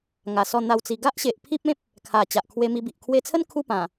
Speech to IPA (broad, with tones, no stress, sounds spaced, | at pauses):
ŋ a˨˩ s ɔ˥˧ n̪ a˥˧ w t͡s i˧ ɡ a˦ ʔ ɕ e˨ ʔ pʰ i˦ p̚ ẽ˦ p̚ | kʰ a˨˩ t͡ɕ a˨ ʔ kʰ w e˧ m i˧ b i˨ ʔ kʰ w e˧ t͡sʰ ə˦ n kʰ u˥˧ p ã˨˩